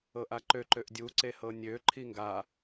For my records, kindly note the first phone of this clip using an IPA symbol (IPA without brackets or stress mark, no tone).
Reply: ɤ